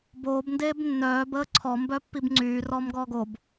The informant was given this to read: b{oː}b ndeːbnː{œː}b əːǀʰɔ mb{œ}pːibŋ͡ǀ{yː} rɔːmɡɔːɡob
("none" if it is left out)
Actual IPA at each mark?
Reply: oː, œː, œ, yː

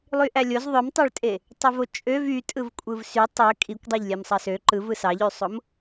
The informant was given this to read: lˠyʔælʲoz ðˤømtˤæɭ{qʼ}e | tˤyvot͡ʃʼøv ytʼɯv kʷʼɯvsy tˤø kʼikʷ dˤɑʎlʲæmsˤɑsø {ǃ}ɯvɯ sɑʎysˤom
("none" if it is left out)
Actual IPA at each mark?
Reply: tʼ, ǃ

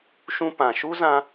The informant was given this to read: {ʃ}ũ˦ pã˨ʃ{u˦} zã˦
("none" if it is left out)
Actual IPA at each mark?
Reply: ʃ, u˦

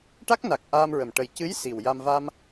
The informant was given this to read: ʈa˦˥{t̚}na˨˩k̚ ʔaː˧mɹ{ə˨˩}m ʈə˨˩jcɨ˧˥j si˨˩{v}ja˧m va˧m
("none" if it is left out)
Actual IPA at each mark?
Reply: k̚, ə˨˩, w

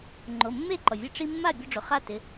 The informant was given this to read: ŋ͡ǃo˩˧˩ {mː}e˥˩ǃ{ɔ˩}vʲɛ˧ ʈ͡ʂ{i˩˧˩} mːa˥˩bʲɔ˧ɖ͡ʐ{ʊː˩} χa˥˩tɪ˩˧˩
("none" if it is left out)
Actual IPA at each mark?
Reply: mː, ɔ˩, i˧, ʊ˩

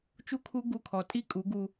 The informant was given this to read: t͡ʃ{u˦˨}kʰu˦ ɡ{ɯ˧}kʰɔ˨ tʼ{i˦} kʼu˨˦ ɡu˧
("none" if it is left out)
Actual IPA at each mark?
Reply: u˦, u˧, i˦

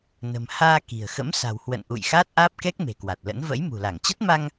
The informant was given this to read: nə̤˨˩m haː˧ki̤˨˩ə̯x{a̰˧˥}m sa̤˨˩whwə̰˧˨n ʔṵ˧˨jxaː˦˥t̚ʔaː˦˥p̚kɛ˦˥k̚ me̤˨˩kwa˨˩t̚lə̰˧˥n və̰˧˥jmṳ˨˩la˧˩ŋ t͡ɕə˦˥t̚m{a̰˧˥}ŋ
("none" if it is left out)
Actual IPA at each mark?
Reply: ə̰˧˥, a˧

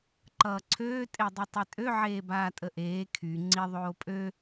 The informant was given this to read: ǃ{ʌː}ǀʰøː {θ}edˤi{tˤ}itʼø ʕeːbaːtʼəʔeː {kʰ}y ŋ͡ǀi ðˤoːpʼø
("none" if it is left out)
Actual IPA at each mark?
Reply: ʌː, tʼ, tˤ, kʰ

